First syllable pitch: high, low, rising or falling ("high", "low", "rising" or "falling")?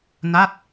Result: falling